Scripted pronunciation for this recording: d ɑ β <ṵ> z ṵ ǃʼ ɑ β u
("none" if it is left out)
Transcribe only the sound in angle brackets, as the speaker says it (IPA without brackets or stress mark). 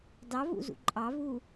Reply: ṵ